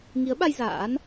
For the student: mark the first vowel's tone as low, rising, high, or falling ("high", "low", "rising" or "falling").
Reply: rising